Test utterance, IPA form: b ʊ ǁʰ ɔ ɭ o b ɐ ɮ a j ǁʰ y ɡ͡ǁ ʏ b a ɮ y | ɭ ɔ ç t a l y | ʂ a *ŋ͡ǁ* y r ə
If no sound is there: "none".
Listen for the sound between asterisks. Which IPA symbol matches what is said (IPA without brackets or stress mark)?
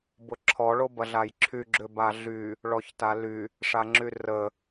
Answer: ŋ͡ǁ